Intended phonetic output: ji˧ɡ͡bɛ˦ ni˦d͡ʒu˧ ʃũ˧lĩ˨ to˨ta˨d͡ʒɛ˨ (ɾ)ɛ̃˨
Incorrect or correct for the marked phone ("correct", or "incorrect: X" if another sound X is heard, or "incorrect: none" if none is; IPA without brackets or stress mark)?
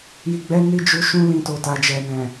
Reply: incorrect: n